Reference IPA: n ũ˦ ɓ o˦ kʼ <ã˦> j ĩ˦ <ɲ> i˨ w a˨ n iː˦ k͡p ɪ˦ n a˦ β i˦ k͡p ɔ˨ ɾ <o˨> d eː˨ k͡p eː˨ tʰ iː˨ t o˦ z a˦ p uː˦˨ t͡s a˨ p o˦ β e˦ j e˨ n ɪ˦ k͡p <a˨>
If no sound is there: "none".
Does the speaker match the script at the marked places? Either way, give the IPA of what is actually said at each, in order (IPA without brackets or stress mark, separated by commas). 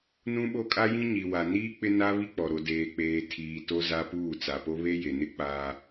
a˦, ɲ, o˨, a˦